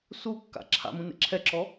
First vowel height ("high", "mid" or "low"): high